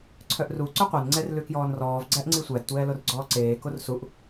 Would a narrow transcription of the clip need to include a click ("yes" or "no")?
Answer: yes